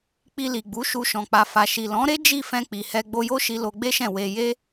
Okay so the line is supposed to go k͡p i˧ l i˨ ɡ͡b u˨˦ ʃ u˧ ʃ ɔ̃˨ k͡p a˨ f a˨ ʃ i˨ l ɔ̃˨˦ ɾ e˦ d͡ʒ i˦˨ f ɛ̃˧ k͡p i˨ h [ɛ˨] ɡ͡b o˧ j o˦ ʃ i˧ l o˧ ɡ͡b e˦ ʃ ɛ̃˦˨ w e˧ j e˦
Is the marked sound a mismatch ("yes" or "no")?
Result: yes